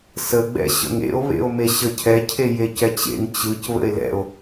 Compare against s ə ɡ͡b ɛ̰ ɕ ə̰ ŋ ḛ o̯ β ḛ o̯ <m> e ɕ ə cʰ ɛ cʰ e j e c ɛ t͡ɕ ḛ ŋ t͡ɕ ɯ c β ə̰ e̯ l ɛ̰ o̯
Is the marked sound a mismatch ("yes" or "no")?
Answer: no